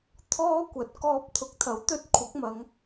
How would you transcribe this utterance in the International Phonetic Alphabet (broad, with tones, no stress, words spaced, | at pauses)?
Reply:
t̪ʰɔː˥kʷɐ˨˥t̚ kɔː˧p̚t̪ʰʊ˨˥k̚t̪ʰɐ˨˥wt̪ɵ˧t̚ kʷʰɐ˨˥k̚mɐ˨˧ŋ